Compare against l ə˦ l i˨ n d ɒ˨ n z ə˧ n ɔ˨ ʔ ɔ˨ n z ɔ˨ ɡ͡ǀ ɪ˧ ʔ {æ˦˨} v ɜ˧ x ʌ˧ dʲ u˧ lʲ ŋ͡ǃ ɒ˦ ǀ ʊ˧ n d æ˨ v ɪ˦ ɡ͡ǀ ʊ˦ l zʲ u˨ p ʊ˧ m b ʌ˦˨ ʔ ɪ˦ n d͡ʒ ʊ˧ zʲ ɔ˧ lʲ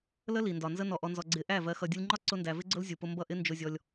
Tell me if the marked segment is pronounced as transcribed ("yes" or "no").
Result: yes